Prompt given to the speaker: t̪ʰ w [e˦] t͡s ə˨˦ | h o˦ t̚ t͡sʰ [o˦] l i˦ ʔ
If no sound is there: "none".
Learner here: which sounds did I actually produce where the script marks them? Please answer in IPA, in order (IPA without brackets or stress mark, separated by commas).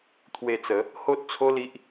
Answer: e˧, o˦